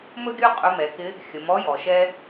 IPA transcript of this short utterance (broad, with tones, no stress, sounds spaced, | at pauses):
m ɵ˥ ɡʲ ɵ˥ qʼ ɵ˧˥ m ɛ˩˧ k ɪ˧˥ | xʲ ə˩˧ m ɔ˧˥ j ɔ˩ ʃ ɛ˧